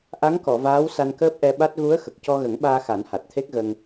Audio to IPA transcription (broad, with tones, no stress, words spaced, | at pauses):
ʔa˧˥ŋkɔ˨˩˨ vaː˧˥w sa˧nkəː˦˥p̚ʔɛ˧ɓa˦˥t̚ ɣu˧˥ə̯ xə˨˩k̚cɔ˧ɣə˨˩˦ŋɓaː˧ xa˨˩˦nha˨˩t̚t̪ʰe˦˥k̚ ɣə˧ŋ